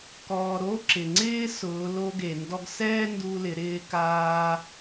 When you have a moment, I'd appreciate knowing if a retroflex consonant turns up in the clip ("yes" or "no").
no